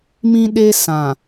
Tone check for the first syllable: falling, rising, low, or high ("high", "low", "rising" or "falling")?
high